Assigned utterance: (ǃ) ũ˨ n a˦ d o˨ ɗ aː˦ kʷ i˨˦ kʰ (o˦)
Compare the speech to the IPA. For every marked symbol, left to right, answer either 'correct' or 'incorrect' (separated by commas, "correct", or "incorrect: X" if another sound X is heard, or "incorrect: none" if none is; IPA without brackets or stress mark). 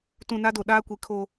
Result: incorrect: t, incorrect: oː˦